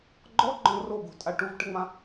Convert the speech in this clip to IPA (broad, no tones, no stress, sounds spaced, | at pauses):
ɡ͡ǃ ɔ ɡ͡ǃ ɔ̃ r o ɡ o̤ tʼ a ʈ u v ʈ ə ŋ͡m ã